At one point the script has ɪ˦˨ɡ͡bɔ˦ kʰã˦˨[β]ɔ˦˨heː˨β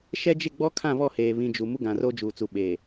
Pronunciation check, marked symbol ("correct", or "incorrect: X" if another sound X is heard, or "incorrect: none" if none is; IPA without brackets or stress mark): correct